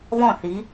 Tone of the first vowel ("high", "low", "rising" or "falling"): falling